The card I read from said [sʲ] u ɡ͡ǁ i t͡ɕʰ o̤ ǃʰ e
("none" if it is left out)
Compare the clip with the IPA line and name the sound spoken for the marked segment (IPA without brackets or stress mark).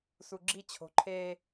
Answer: s